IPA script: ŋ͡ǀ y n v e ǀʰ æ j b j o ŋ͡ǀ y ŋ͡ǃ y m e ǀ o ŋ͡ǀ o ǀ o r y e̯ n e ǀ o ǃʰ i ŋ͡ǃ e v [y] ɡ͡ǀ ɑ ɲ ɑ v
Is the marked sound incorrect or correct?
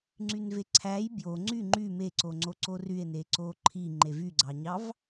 correct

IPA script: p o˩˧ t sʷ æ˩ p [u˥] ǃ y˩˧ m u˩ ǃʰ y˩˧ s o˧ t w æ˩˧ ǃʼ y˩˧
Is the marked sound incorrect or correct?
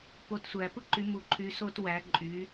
incorrect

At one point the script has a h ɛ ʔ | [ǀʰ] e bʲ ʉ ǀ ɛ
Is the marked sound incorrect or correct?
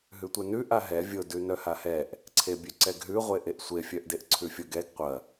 correct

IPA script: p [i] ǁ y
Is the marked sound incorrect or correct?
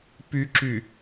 incorrect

